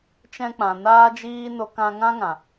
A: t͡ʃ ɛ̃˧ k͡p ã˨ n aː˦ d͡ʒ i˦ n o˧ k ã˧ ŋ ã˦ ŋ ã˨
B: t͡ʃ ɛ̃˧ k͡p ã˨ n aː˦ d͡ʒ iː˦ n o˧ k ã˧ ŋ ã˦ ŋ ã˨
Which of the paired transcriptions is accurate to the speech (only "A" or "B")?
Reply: B